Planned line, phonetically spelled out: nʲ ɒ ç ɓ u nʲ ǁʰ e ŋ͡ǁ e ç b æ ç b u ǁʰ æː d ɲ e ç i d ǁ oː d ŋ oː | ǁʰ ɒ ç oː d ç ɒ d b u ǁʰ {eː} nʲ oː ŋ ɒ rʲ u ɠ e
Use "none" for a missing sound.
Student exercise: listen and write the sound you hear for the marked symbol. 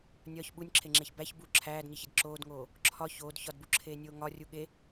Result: eː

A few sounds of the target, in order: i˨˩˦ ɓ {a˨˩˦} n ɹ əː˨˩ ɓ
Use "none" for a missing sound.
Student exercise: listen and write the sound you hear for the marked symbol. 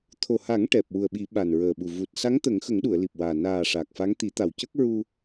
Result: a˨˩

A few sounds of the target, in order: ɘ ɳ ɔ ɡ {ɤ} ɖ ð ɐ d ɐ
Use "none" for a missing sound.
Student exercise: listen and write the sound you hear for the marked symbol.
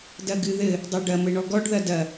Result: ɔ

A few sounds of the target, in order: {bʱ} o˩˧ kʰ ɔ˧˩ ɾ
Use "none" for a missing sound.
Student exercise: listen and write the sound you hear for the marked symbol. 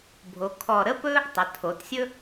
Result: bʱ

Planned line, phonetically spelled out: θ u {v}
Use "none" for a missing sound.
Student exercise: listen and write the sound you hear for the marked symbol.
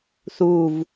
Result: v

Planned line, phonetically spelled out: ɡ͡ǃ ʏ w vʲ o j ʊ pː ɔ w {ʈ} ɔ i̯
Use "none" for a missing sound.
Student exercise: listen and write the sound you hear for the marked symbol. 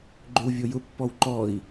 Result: ǃ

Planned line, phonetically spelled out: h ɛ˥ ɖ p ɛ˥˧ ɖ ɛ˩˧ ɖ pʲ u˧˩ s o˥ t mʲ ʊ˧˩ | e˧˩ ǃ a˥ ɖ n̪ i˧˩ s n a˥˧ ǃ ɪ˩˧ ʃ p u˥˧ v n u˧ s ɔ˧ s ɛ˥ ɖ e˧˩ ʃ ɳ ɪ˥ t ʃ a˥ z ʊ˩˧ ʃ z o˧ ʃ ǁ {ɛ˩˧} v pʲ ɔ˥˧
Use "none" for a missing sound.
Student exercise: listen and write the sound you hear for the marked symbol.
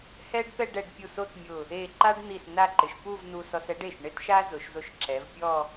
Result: ɛ˩˧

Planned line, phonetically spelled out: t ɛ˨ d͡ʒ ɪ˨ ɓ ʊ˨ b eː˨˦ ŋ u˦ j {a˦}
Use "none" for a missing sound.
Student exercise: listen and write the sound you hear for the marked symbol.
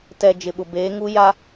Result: a˦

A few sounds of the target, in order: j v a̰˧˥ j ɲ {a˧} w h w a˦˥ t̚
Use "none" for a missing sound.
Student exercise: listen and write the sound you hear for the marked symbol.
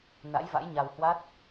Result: a˧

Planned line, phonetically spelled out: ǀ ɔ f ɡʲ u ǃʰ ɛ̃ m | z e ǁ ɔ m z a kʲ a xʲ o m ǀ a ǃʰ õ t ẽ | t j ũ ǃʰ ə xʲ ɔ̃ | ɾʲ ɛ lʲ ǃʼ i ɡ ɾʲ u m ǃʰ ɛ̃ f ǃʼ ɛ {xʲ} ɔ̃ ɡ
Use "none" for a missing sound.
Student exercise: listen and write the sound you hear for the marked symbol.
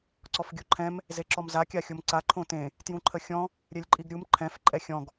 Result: xʲ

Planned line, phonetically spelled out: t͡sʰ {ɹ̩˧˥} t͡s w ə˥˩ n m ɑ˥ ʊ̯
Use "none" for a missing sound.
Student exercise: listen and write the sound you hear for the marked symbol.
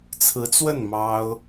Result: ɹ̩˧˥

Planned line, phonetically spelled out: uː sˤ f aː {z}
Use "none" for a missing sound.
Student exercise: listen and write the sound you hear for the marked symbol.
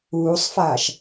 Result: ʃ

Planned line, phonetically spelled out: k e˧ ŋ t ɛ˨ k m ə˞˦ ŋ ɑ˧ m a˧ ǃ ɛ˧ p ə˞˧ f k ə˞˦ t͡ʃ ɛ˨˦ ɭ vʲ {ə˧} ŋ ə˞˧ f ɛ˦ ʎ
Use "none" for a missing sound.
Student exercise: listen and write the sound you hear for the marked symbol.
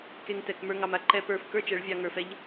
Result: ɑ˧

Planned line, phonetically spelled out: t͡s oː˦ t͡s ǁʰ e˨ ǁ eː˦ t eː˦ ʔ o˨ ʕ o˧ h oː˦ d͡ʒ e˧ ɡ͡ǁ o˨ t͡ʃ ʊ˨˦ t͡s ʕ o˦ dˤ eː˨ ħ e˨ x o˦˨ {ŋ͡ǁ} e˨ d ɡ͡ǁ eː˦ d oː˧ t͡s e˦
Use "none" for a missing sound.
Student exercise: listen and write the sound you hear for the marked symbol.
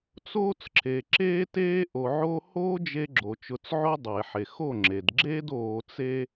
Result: ŋ͡ǁ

